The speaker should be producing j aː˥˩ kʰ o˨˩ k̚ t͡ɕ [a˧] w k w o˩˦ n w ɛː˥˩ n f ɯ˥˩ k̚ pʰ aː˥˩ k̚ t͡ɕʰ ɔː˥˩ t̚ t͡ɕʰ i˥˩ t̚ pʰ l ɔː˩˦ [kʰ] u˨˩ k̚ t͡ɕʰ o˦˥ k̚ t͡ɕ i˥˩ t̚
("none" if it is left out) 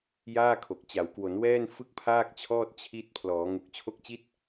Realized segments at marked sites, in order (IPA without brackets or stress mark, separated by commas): a˩˦, ŋ